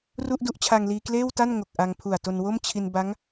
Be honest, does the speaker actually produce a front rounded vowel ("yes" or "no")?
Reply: no